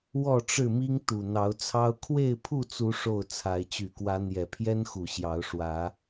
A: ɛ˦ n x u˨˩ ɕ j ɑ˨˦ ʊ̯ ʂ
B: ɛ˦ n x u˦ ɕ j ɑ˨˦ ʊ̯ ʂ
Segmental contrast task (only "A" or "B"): A